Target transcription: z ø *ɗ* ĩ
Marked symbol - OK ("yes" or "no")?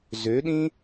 yes